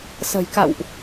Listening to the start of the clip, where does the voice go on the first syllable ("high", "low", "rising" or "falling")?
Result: low